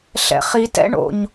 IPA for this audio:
ɬɛ̰χitɛ̰ ɳo̰ɲ

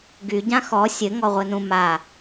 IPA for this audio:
ɡyɟã xɔ sʲɘŋɔʁʷɘnũ ma

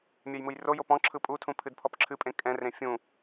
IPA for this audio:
mʲɛjmɯjrojo pɔ̃ ǁʰɯpʼutʰũ pʰɨdpʰɔpǁʰɨpʼẽ kʼɛ̃rẽ fʲũ

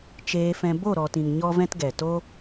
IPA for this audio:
t͡ʃeː˧fɛ̃˧ bo˦˨ɾɔ˨tĩ˨ŋ ɲɔ˦vɛ̃˦tɡɛ˨ to˦

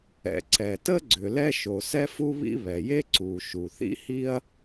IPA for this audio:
ɛ̰˩ ǀɛ˩tə˥ ɡ͡ǀʏ˩lɛ˥ʃo˩ sɛ˥fu˥βḭ˥ βɛ˩je˥ ǀu˩ ʃu˩θḭ˥hi˥ɐ̯

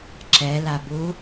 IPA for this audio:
ǁɛlabu

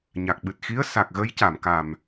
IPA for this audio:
ɲa˨˩k̚ ɓɨ˨˩t̚ xi˧˥ə̯sa˨˩k̚ɣə˧˥jca˨˩˨m ka˨˩m

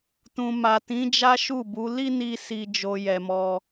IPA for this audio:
tũ˨ma˨tĩ˨˦ d͡ʒa˦ʃu˦˨bu˨˦ li˦ni˧ si˧ d͡ʒo˧jɛ˨mɔ˧

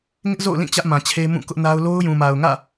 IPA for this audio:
ŋɪ˦ʔzo̰˦˨ʊ̯lĩ˦˨ t͡ɕä˦ʔmã˨t͡ɕʰe˦ mũ˦˨kʊ˦ʔna˦ʊ̯ lo˦ʊ̯jũ˨ma˨ʊ̯ŋä̰˦˨

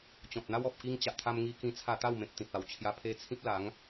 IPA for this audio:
t͡ɕɔ̃˨t̚n̪a˦w ɔ˨p̚ki˧ŋt͡ɕa˨ʔt̪ʰa˧m ŋi˧kĩ˧t͡sʰa˧t̪a˥˧w mẽ˨p̚t̪ĩ˨t̚a˨˩wt͡ɕʰja˧ pʰe˧t͡sʰĩ˦p̚la˨˦ŋ

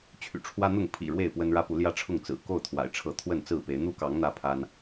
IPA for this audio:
t͡ɕʰy̰˨˩ʈ͡ʂʰwä˦n̪ʊ˥˨ŋ pʰḭ˨˩ ɻwe˥˨ɪ̯pwə˦nɻä˦pu˨˦ ljä˦ʈ͡ʂʰʊ˥˨ŋt͡sɹ̩˨˩ ko˥˨ʊ̯t̪ʰwa̰˨˩ɪ̯ ʈ͡ʂʰɤ˥˨ t̪ʰwə˥˨nt͡sɹ̩˥˨pe˨˦ɪ̯ n̪u˦kɑ˨˦ŋ n̪ä˦pʰa˦n

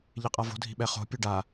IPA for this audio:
ʎeqʼavo̤ dʱi̤ɓɛχo̤ pʲuɖa

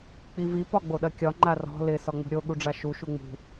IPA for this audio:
k͡pivi pɒɡ͡boɗɐkʲɒ ŋ͡ǃarɔ̤ lɪ sɒŋ͡mṳɾʲo ɠuɖ͡ʐaʃu ʃuŋ͡mṳ

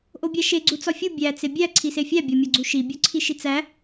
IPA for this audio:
ʔobʲæʃe ɡ͡ǀut͡sɒfʲu bʲæ t͡sebʲæ ǀʰisefʲæ bʲɒmʲɒɡ͡ǀuʃi bʲoǀʰiʃit͡sæ

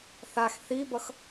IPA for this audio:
θax θibʌx

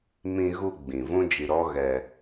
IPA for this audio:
mĩ˧ɣu˧ ɡ͡bĩ˨vũ˦d͡ʒi˧ɾɔ˦ ɣɛ˧

